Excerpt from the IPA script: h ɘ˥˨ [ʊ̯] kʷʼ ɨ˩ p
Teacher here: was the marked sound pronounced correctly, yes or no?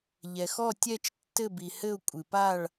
yes